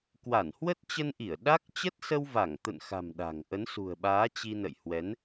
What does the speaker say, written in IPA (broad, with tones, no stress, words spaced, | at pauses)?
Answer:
kwa˧˩nhwə˦˥t̚t͡ɕə˧nʔi˧˩ə̯ ɗa˦˥k̚ t͡ɕə˦˥t̚sə˧wva˧˩ŋ t̪ə̰˧˨nxa̤˨˩m ɗa̤˨˩ŋ ʔə˨˦nsṳ˨˩ə̯ɓaː˨˦ t͡ɕi˧nə̰˧˨jhwɛ˨˦n